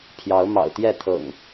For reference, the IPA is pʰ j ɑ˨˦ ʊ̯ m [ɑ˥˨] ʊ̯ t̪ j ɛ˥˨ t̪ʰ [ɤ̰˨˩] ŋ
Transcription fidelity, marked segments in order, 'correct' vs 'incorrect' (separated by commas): incorrect, correct